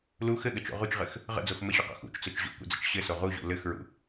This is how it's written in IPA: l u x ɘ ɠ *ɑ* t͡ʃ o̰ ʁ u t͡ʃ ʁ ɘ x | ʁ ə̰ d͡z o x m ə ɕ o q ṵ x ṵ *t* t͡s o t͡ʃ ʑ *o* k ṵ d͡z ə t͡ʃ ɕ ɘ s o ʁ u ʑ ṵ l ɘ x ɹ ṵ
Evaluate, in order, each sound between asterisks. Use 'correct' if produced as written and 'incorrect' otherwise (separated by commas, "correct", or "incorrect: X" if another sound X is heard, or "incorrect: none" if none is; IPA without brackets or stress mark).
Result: incorrect: ə, incorrect: t͡ʃ, incorrect: o̰